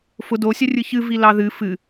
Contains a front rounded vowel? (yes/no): no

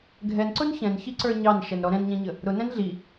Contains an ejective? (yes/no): no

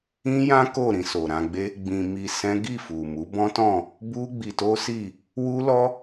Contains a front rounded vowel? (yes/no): no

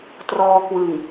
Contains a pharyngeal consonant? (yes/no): no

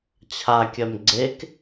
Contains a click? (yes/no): yes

